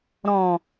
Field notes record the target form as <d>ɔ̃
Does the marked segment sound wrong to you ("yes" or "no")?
yes